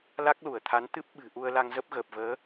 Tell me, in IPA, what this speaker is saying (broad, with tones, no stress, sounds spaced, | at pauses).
l a˦˥ k̚ l u˧˩ ə̯ t̪ʰ a˨˦ n t̪ ɨ˦˥ p̚ ɓ ɨ̤˨˩ ʔ u˧ ə̯ l a˧ ŋ z ə˦˥ p̚ ɣ əː˨˩ p̚ v əː˨˦